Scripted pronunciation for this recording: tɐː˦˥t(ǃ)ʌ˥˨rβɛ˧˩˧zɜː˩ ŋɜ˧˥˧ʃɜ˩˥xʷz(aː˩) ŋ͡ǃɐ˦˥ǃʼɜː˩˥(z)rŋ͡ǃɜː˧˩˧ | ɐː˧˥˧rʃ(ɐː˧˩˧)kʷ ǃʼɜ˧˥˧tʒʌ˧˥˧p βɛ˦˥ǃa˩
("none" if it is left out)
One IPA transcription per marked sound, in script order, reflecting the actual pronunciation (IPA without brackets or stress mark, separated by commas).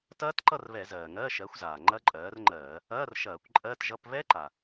ǃ, aː˩, none, ɐː˧˩˧